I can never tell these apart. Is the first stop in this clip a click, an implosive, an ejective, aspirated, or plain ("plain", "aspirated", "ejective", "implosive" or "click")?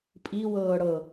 ejective